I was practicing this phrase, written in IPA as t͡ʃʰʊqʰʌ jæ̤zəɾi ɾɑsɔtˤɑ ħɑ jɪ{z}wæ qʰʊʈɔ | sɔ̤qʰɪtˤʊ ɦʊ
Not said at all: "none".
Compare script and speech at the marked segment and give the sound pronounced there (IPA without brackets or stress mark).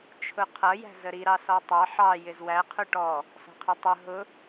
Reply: z